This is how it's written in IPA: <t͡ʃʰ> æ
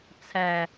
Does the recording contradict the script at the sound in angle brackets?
yes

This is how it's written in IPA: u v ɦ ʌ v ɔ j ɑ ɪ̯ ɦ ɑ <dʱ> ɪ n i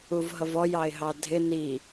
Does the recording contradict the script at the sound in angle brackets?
no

